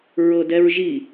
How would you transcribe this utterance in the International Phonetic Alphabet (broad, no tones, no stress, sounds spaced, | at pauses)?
ɹ ɤ d ɛ ɹ ʒ i